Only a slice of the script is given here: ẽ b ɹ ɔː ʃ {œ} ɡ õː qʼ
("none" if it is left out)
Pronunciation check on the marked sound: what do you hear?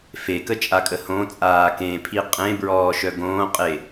œ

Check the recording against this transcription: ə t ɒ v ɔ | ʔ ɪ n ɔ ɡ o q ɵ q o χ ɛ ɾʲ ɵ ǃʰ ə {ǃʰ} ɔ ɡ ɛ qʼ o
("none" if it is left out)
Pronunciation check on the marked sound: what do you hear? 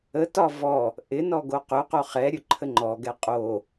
ŋ͡ǃ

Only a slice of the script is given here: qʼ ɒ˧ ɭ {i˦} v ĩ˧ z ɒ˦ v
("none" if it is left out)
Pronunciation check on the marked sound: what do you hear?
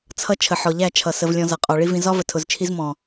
i˦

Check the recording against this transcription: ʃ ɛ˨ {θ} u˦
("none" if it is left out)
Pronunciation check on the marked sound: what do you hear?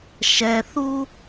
θ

